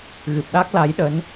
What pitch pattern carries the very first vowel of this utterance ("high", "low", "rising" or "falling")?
low